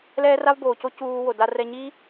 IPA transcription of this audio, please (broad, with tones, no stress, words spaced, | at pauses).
lɛː˦ra˦vboː˨co˦ cuː˧wo˨ da˧rɛ˧ɲi˦